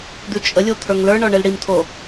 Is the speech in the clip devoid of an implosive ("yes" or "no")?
yes